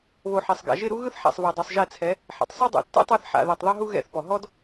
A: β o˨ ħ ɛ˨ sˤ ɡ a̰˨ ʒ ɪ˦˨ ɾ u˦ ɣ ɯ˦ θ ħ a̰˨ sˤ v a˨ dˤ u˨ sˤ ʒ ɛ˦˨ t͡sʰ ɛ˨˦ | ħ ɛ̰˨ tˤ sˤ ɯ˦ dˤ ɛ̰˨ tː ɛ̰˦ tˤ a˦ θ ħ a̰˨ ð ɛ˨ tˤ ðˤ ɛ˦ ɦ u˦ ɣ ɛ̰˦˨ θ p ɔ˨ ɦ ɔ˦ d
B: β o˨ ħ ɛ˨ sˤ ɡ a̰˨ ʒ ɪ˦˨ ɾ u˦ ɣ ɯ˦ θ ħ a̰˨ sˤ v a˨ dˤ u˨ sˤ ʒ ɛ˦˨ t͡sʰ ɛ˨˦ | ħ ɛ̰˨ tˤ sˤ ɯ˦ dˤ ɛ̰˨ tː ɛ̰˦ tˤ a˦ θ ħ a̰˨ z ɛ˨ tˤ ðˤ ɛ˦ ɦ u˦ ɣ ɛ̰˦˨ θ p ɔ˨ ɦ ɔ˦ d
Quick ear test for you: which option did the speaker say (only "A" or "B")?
A